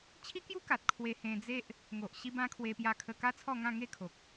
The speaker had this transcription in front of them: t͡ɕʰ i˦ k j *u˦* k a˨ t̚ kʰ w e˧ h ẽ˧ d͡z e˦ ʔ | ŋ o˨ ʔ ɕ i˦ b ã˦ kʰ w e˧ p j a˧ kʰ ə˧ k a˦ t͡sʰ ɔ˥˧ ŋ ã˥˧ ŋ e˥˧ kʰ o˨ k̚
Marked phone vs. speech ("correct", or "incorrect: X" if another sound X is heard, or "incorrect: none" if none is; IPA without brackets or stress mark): correct